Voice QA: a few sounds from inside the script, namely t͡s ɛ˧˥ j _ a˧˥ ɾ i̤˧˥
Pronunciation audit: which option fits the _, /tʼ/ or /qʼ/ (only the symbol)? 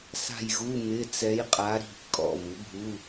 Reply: qʼ